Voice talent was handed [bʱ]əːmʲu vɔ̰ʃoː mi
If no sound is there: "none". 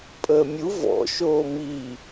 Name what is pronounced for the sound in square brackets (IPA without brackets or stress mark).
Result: pʼ